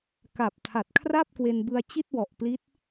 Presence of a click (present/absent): absent